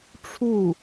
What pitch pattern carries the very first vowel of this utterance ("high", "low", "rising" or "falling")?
falling